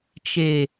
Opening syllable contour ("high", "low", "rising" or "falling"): low